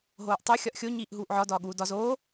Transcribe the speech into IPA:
ɦ oː ʔ tˤ o xʲ ɒ ʔ xʲ o ɲ iː ʔ ɦ uː ʔ ʕ ɒ d ɒː ɠ uː d ɒ z oː

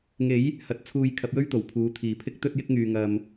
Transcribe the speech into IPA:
ŋ e˨˥ j | h ɐ˧ t̚ t͡sʰ uː˧ j kʰ ɐ˨˥ p̚ j ɵ˥ ɥ t̪ o˨˩ w pʰ uː˨˧ t̪ʰ iː˨ pʰ ɪ˥ k̚ t̪ ɵ˥ t̚ j ɪ˥ k̚ ŋ yː˧ ŋ ɐ˧ m

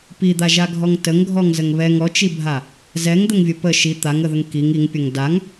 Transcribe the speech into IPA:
p i d̪ a ʒ a ɡʱ ɔ ŋ t ə ŋ ɡʱ ɔ ŋ z ə ŋ β ɛ ŋ ɔ t͡ʃ i bʱ a | z ɛ ŋ d̪ ə ŋ vʲ ə p ə ʃ i t̪ a ŋ ə ð ə ŋ k i ŋ i ŋ pʲ ɐ ŋ d a ŋ

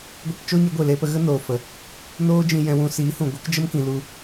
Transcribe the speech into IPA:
ɡʷ i˧ p t͡ʃ o˦ ɲ ɨ˨˦ ɡʷ e˨ l e˧ p ə˧ ɣ ə˦ n oː˨ f ə˨ | n oː˦ d͡ʒ ĩ˧ j ɛ̃˧ w ũ˧ s iː˨˦ h ũ˨ ɡʷ ɨ˨˦ k d͡ʒ ə˦ m k ĩ˨ l u˧

